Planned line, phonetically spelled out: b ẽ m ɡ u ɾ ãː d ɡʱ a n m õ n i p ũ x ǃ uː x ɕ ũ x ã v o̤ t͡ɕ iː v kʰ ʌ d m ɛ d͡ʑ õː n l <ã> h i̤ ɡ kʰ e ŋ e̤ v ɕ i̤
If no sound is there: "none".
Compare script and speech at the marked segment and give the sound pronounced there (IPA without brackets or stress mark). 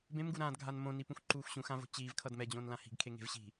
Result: ã